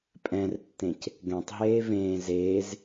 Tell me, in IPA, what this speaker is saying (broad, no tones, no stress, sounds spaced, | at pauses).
pʼ ɛ̃ r tː ẽ c | ɡ ɛ̃ tˤ ɦ eː v ẽː z eː z